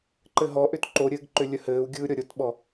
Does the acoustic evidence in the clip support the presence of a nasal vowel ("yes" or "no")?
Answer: no